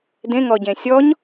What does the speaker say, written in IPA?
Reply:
dẽŋɔɟẽ sʲɔɲ

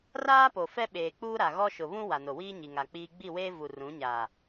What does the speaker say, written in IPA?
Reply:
raː˦po˨ fɛ˦ɓeː˨k͡puː˦ɾa˨ ɣɔ˦ʃʊ˨ βũ˦ wa˨no˨wiː˦ ɲi˨ŋa˨ k͡piː˦ ɡ͡bi˦˨weː˦ vu˨rũ˨˦ɲaː˨

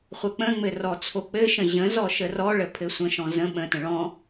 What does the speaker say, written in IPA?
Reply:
χʷək͡pə̃ŋ͡mɘ rɔt͡sʰok͡pɘʃə̃ ʑə̃zɔ ʃərɔɭə pʰɘsʷə̃ʃɔ̃ zə̃ ɓə̃tə̃ ɭɔ̃

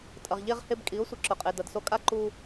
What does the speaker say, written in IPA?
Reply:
tʼɐ˩ʁʎe˧ʁhe˧bkʼi˩˥ʊ̯ sʷɨ˩ǁɵ˩qʼe˩ dɐ˩dso˧kʼa˥ ǃu˧

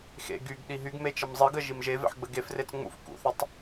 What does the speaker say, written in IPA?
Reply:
xḛ ɡyɡ ɗiɦyɡme t͡ʃəmzˤɨɡə ʒimʒevḛħ ɡ͡bəɡefret͡s ŋ͡mṵf kṵθətˤ

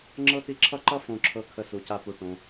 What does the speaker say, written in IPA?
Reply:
ŋ͡ǁɤ˥t̪i˦ǁʰʌ˥ ǃʌ˦fõ˨ǁʰɤ˨ kʰə˨su˩ca˨pu˩ ʈõ˩

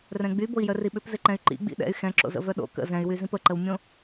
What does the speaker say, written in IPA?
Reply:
rɛ̃ɡ͡byboi̯jœ riɓʏpzɪǃɛ̃y̯ ǃḭɡ͡bḭ ɗɛ̰y̯ xɛ̃ǁo̰zə̰ vœɗo̰ kə̰ zɛ̃y̯wy zĩpəǃəwmʲõ

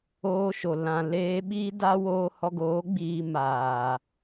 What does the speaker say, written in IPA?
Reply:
oː˧ʃo˨ lã˨ leː˧ɓiː˦da˦ woː˧hɔ˧ɡoː˨˦ ɡ͡biː˧ maː˨

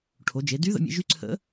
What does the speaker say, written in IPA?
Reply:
ʈʰo˩˧d͡ʒe˩˧ dy˧˥ðə̰˧mʲḛ˧ʒy˧˥ ǀʰə̰˧˥

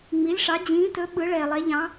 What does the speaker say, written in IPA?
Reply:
ŋ͡mi˨˥lʲʂɑ˨˥ d͡ʑĩː˨˥tɵ˨˥ ɓɯ˨˥ɭɛː˨lˠɛ˨˥ʎɑ̃˨˥

